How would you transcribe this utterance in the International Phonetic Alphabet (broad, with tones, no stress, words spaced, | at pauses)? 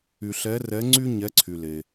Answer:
y˩ɬɛ˩˧rɛ˩˧ ŋ͡ǀy˧ ɲɛ˩˧ ǀʰy˩le˩